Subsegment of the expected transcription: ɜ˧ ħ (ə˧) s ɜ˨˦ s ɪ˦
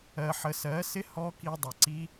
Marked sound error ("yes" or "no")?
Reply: no